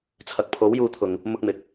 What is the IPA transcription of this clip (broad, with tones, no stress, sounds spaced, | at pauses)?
t͡sʰ ɐ˨ k̚ pʰ o˨˥ w j uː˧ t̪ʰ ʊ˨ ŋ | m ʊ˧ k̚ m ɪ˨˥ k̚